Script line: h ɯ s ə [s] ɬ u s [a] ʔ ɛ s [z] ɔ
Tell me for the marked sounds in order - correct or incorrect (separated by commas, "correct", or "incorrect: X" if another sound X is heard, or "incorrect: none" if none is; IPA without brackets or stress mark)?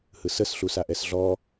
correct, correct, incorrect: ɮ